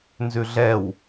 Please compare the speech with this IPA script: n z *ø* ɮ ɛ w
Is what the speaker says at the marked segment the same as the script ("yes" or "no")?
no